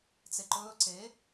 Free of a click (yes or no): no